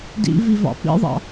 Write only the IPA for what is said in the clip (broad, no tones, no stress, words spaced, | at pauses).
dḭvivɑ̰ pḭðˤɑ̰